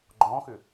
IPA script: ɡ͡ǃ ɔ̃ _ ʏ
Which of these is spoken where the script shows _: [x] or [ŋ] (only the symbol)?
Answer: x